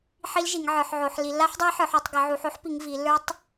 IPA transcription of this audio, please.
ħ i˦˥ l ʒ i˩˧ ŋ ʕ ə˞˩˧ ħ ʕ o˩˧ ħ l i˩˧ lː a˦˥ ħ dˤ a˦˥ j ħ ə˞˩˧ ħ u˩˧ tˤ ɡ ə˩˧ ʕ u˩˧ ħ o˦˥ ħ p i˩˧ ŋ v i˩˧ lː ə˞˦˥ tˤ

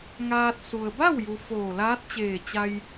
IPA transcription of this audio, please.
ŋ aː˧ t̚ s u˩ ə̯ b a˥˨ w j u˩ f oː˧˩ l aː˧˥ t̚ t͡ɕ eː˧˩ t͡ɕ a˧ j

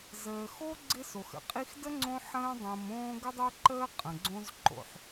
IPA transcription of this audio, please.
z əː˨ x o˥ ɡ͡ǀ ɪ˦ s o˩ x ə̰˩ qʼ i˦ x d ə˥ ŋ͡ǀ õ˦ ħ ə̃ː˦ dˤ ə̃ː˨ m õː˦ ɡ ə˦ dˤ o˦ ǃ əː˦ qʼ ə̃˩ ɡ͡ǀ õ˦ z ǃ o̰˨ ħ

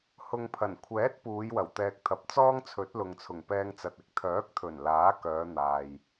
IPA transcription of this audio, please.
h ʊ˨ ŋ pʰ ɐ˨˩ n kʷʰ ɛː˨˥ t̚ p uː˨˧ j w ɐ˨˩ w t̪ ɛː˨ k̚ t̪ʰ ɐ˨ p̚ t͡s ɔː˥ ŋ t͡sʰ ɵ˨˥ t̚ l ʊ˨ ŋ t͡sʰ ʊ˨˩ ŋ p ɛː˧ ŋ t͡s ɐ˨ t̚ ɪ˨ k̚ t̪ʰ œː˨˥ k̚ t̪ʰ ɵ˨˩ n l aː˨˥ k œː˨˧ n̪ aː˨ j

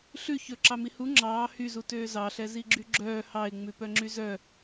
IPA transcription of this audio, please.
ɬ ʉ ç ɵ ǁ ɑ m i h u ŋ͡ǁ ɑː h y z u t øː z ɑ ɬ ɛ z i ɡ͡ǁ y ɡ͡ǁ œː h ɑ ɪ̯ ŋ͡m ʉ p œ ŋ͡ǁ y z œ

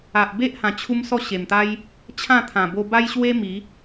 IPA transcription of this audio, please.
a˨ ʔ b e˦ ʔ h ã˨˩ t͡ɕʰ u˦ m s ɔ˥˧ ɕ e˨˩ m t̪ a˦ j | t͡ɕʰ ã˥˧ t̪ʰ ã˨˩ b o˧ b a˦ j ɕ w e˦ m i˨˦

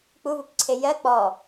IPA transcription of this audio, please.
k͡p u v u p ǀʰ e j ɜ k͡p ɔ

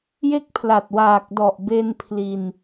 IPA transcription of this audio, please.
j e˦˥ k̚ pʰ l a˨˩ t̚ w aː˨˩ k̚ d ɔ˨˩ ʔ b e˧ n pʰ l i˧ n

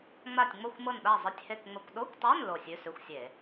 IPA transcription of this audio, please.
ŋ͡m a˦˨ tʲ ŋ͡m ɤ˦˨ xʷ m ɤ˦˨ n ɗ a˦˨ zˤ ɘ˧˥˧ tʲ h e˦˨ k ŋ͡m ə˧˥˧ kʷ ɗ o˧˥˧ kʷ tˤ a˧˥˧ n l o˦˨ sʲ ʉ˧˥˧ s ʉ˧˥˧ xʷ sʲ e˧˩˧

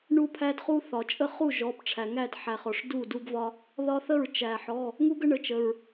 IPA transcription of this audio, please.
ɳ u˦ pʰ æ˦ d χ u˦ θ ɒ˩ t͡ʃʼ ə˥˩ χ u˥˩ ʒ ɔ˩˧˩ p ʈ͡ʂʰ æ˩ ŋ æ˥˩ d ħ æ˩ χ ɔ˩ ʂ d u˥˩ d u˦ ɡ v ɒ˦ | ð ɒ˦ θ ə˥˩ ɹ t͡ʃ æ˩ ħ ɔ˩˧˩ | ŋ u˦ ɡ ə˦ ɳ ə˩˧˩ t͡ʃ ə˩ ɹ

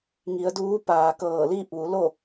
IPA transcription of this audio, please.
ŋ i˩˧ ə̯ d uː˧˥ p aː˩ k ɤː˧˩ l iː˥˨ p̚ ʋ u˩˧ l o˥˨

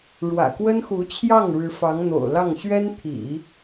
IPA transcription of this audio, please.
ɻ w ä̰˨˩ k w ə˥ n x u˧˥ t͡ɕʰ j ɑ˥˩ ŋ ɻ ɻ̩˧˥ f ɑ˧˥ ŋ n̪ o̰˨˩ ʊ̯ l ɑ˥˩ ŋ ɕ ɥ ɛ˥ n t̪ʰ ḭ˨˩˦

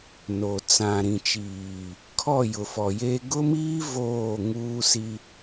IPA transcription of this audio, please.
n o˨ t͡s ã˨ ɾ ĩ˨ t͡ʃ iː˨ | kʰ ɔ˦˨ j ʊ˨ f ɔ˨ j e˦ ɡ ʊ˦ m iː˦ v oː˦˨ ŋ uː˦ s i˦

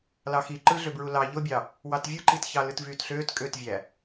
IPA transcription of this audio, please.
l ɑ x i ǃ ɯ ɮ ø b ɹ u l ɑ ʎ o bʲ ɑ | w ɑ t vʲ ɯ ǃ i t ç ɑ l ɯ t v yː t ɬ øː t kʼ ø t vʲ æ

